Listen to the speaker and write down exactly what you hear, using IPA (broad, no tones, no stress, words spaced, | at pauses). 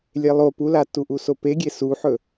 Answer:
lʲelˠo pula tuʔusope ɡʲesuħɵ